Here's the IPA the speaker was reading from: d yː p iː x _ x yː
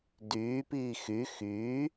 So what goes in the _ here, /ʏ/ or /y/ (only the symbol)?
y